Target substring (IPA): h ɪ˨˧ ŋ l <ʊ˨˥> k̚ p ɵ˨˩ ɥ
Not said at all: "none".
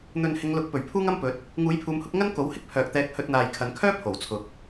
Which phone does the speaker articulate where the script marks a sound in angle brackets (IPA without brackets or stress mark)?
ʊ˨˥